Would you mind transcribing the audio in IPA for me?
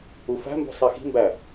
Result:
u f æ̤ m b ṳ sˤ i x i̤ m b æ

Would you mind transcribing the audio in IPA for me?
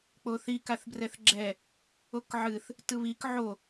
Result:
k͡p o θ i k a θ b r ɛ θ ɡ͡ǁ ɛ | o k ʕ ɨ θ | t ɯ β i k ʕ o

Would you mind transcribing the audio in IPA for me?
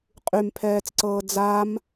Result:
qʼ y m pʰ ɛː t͡s ǀ ɤː d͡z a m

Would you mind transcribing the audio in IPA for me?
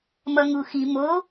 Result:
m ʌ ŋ u x i m o

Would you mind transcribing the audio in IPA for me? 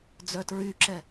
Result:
d͡z œ t ɹ y ǁ ɛ

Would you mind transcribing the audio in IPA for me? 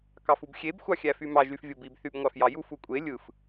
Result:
k ɑ f u b xʲ e b xʷ ɑ xʲ æ f y m ɑ ʒ y f vʲ o b i b θ y b ŋʷ ɑ f j ɑ j u f u kʷʼ e lʲ ɯ f

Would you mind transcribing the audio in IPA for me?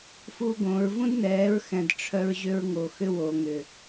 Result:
f u˦ ɡ õ˨˦ ɹ v ũ˦ d n ɛː˨˦ ɹ x ɛ̃˨ d ʈ͡ʂʰ œ˦ ɹ ʑ ʏ˦ ɹ ŋ o˨ x ʏ˦ w o˨ ŋ ʏ˨

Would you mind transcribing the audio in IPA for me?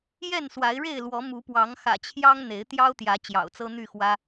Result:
j ɛ˥˨ n s w a˨˦ ɪ̯ ɻ e˥˨ ɪ̯ l w ɔ˨˦ m u˨˦ p w ɑ˨˦ ŋ x ä̰˨˩ t͡ɕʰ j ɑ˦ ŋ n̪ e˨˦ ɪ̯ t̪ j ɑ˦ ʊ̯ t̪ j ä˨˦ t͡ɕ j ɑ̰˨˩ ʊ̯ t͡s ɤ˦ n̪ y˥˨ x w ä˦

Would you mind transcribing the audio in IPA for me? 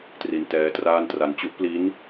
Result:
t r i˧ n t ɛː˦˥ t r aː˥˩ n t r a˧ n t͡ɕ u˦˥ ʔ p l i˦˥ n

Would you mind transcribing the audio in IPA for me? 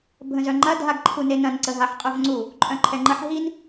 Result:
bʱ ə̃ z œ ŋ͡ǃ ɐ dʱ a ɡ ǃʰ u n e n ɐ̃ n ǀ ə ɦ a ħ qʼ œ v ŋ͡ǀ u | ǃʼ œ̃ ǃʰ ɛ ŋ͡ǃ ə ħ ɦ i n

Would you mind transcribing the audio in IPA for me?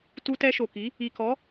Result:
t u˧ t ɛ˧ ʃ o˨ k i˨˦ | i˨ k ɔ˨˦

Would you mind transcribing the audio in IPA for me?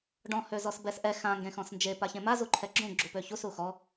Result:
ɖ ɔ̃ h ø z ɔ s b ɛ s ʔ ɛ x ã ŋ ɡ ẽ x ɔ̃ s n d͡ʒ e p a ç ẽ m a z u ǃʰ ɛ ɡ͡ǁ ũ ɡ͡ǁ u p ø ç u s u x ɔ

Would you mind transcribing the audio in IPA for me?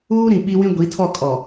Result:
uː˦ ɾ ĩ˨ ɓ i˦ w ĩ˦ ɡʷ i˨˦ tʰ ɔ˦˨ kʼ ɔ˨

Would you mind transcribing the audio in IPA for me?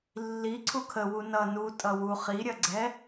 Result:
lː i ǀʰ u kʰ ə w u n ʌ n u tʼ ʌ w u χ i ɾʲ ɐ ɡ͡ǀ ɛ

